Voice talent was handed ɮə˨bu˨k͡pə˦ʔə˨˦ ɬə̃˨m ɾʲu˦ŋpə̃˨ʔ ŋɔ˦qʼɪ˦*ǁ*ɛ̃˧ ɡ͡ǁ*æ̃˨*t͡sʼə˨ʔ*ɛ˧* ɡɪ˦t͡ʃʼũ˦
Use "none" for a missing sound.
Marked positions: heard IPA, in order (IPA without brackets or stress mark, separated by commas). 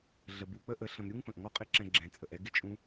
ǁ, ɛ̃˨, ɛ˧